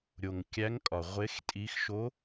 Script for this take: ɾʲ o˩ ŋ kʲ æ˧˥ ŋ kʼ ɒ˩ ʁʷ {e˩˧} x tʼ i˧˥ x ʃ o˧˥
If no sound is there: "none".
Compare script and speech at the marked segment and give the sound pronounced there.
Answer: e˧˥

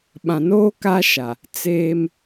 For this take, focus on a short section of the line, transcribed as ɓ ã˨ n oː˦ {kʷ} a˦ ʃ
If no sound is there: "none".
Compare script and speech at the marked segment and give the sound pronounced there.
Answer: k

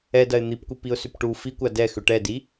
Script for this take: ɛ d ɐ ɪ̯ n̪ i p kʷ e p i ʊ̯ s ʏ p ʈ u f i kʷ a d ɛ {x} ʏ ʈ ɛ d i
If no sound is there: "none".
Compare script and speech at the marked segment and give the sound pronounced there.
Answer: x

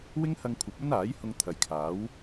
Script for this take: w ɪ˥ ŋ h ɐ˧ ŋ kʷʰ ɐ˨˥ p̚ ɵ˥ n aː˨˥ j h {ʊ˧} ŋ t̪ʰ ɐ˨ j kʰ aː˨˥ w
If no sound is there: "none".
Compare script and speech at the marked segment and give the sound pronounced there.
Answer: ʊ˧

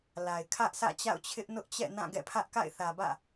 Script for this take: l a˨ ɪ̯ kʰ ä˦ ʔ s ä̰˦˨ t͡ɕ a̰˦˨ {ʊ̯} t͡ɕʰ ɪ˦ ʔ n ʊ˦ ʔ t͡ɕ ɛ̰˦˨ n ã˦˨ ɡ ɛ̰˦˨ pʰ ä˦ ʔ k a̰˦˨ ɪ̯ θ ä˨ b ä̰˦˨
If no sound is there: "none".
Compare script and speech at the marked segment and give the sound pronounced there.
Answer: ʊ̯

